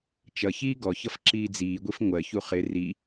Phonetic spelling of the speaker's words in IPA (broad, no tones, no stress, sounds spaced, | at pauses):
t͡ʃ ʌ ç iː ɡ ɔ ç ʌ f ǁ iː d͡z iː ɡʷ i f ŋʷ ɜ ç u χ ɪ r i